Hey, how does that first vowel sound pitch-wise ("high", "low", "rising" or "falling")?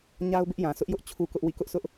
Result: high